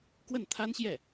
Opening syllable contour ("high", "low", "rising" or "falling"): falling